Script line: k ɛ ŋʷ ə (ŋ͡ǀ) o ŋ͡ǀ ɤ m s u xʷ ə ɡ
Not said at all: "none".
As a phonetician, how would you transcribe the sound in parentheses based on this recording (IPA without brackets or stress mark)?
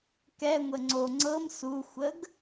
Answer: ŋ͡ǀ